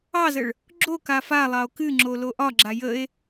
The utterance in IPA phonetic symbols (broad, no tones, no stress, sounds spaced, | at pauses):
ɑ z ə ɭ | ɡ͡ǁ o k a f a lˠ ɑ o̯ k ɨ ŋ͡ǁ o l o ʔ ɒ ɡ͡ǁ a j ə e̯